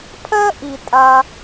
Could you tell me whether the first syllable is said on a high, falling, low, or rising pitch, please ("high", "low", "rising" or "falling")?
high